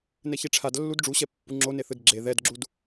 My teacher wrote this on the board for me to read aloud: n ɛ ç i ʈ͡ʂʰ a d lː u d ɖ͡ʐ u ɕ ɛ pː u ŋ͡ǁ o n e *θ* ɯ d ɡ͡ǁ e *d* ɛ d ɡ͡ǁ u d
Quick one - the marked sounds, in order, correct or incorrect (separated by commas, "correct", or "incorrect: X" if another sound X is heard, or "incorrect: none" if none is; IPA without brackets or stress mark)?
correct, incorrect: ð